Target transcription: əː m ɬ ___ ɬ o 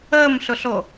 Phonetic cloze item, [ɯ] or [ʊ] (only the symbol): ʊ